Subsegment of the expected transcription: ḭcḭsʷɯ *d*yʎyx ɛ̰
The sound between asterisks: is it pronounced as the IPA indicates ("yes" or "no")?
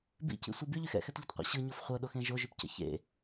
no